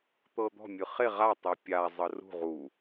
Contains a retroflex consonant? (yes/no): no